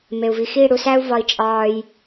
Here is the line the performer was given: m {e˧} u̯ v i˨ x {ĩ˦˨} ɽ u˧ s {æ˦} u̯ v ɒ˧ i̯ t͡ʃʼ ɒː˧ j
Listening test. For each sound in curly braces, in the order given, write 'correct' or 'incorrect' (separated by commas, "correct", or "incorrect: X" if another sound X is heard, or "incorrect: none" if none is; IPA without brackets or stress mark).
incorrect: e˨, incorrect: i˦˨, correct